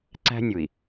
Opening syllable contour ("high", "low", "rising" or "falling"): high